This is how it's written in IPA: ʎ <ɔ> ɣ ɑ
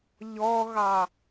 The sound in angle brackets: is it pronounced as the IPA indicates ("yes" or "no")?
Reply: yes